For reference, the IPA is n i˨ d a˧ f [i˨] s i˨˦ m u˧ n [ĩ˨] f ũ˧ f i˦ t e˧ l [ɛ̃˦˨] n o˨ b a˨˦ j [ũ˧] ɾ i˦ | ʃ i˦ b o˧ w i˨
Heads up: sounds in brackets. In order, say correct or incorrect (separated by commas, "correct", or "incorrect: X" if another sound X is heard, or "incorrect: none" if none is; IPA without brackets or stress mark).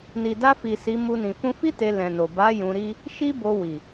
correct, correct, incorrect: ɛ̃˨, correct